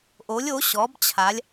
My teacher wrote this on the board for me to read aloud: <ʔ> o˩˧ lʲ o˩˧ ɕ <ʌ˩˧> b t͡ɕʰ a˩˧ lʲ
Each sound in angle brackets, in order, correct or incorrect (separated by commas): correct, incorrect